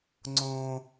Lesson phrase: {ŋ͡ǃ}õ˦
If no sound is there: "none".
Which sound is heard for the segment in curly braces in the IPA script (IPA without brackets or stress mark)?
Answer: ŋ͡ǀ